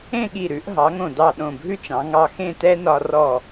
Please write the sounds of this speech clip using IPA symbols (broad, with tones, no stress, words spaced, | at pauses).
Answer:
ẽ˥˧ɠi˧˩ɾʉ˩˧ʔ ɦɑ˩˧ŋõ˧˩dɑ˧˩ ɗõ˧˩bʱʉ˥t͡ʃɑ̃˩˧ ŋɑ˧xẽ˥˧tɛ˥nɒ˧ rɔ˧˩